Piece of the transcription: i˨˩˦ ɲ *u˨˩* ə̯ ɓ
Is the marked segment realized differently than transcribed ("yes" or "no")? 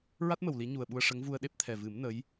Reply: no